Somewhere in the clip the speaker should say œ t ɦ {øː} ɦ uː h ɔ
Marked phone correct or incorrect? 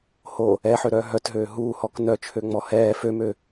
correct